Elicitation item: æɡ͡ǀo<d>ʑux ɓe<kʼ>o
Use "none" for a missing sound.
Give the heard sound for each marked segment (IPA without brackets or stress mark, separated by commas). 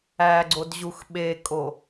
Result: d, kʼ